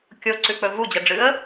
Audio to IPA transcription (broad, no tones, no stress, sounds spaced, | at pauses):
kʲ o ǀ ʉ k͡p ɵ v u d͡ʑ ɐ ɖ͡ʐ ɨ ə̯